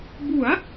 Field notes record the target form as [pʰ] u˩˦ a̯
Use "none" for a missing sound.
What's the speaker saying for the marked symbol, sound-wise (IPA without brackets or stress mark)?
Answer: b